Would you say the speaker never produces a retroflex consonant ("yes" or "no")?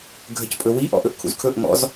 yes